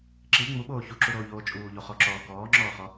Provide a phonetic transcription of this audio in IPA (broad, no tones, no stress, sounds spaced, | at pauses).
ǁ i ŋ͡m u ɓ oː ç u ǁ u ɾ oː ʎ oː t͡ʃʼ uː ʎ o χ ɔ ǁ ɔː k ɔː ŋ͡ǁ ɔː χ ɔ